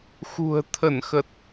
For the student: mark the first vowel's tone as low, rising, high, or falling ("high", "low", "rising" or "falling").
low